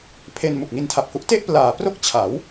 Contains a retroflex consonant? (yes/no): no